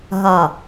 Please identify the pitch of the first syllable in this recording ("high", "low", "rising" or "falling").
low